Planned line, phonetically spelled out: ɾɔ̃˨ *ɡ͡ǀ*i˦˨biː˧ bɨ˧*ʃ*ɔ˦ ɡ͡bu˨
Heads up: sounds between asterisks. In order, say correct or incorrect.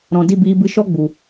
incorrect, correct

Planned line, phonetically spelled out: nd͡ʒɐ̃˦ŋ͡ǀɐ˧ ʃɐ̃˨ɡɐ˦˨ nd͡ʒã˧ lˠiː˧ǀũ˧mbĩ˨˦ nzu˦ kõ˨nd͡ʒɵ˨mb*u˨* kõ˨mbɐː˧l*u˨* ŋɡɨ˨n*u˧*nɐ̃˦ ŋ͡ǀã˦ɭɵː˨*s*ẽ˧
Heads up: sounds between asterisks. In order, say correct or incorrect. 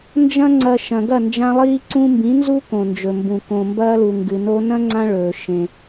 incorrect, correct, incorrect, incorrect

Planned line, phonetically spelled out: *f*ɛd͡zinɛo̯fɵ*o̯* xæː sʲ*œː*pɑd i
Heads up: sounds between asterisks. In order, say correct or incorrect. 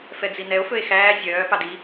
correct, incorrect, correct

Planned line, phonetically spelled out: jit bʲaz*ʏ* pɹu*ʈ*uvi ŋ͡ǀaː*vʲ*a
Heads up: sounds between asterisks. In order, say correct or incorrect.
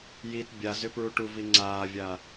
correct, correct, correct

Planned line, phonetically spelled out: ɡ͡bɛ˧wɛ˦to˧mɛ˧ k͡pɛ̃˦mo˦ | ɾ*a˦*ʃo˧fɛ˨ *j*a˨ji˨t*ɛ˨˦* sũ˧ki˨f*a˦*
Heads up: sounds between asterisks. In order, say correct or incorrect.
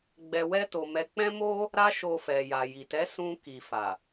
correct, correct, correct, incorrect

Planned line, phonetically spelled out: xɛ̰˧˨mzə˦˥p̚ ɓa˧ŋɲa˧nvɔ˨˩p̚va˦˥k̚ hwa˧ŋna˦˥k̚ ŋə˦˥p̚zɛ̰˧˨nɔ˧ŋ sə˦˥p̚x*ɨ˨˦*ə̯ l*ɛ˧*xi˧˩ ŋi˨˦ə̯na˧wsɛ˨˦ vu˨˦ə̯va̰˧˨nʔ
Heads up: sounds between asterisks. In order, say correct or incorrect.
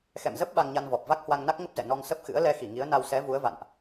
incorrect, correct

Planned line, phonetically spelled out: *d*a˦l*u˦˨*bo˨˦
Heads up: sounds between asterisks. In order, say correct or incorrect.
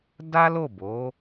correct, incorrect

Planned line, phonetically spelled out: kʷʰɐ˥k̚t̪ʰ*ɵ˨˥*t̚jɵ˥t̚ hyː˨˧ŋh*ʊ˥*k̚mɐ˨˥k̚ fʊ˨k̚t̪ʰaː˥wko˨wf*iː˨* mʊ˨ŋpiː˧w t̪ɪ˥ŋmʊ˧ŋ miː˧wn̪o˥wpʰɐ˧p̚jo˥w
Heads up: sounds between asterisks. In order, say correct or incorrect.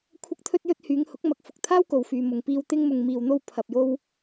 incorrect, incorrect, incorrect

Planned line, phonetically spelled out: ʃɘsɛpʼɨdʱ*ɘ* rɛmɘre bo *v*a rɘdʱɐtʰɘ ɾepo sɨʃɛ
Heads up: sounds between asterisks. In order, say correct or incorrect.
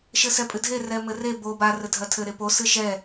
incorrect, incorrect

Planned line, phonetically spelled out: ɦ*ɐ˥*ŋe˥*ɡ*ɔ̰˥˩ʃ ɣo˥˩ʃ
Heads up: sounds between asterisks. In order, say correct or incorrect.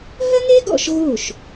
correct, correct

